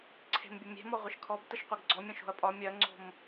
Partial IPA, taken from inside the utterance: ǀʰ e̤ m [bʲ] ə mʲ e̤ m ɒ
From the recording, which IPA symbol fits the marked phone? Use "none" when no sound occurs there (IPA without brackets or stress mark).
bʲ